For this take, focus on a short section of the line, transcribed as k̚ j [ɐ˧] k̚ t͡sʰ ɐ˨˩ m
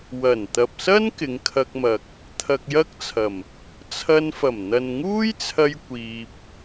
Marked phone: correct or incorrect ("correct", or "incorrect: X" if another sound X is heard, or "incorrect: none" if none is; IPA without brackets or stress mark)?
incorrect: ɐ˥